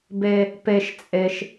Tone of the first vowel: high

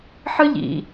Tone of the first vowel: high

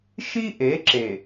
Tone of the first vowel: high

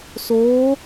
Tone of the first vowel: rising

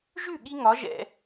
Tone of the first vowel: falling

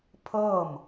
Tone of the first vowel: falling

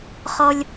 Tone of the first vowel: high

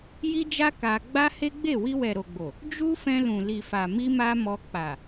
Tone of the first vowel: high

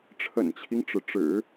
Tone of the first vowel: low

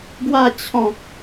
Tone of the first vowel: falling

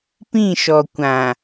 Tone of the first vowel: falling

